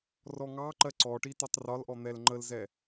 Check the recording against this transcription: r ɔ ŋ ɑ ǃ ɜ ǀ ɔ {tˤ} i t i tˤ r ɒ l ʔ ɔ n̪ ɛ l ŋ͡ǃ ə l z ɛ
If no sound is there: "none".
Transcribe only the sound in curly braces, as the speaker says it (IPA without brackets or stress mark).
ʈ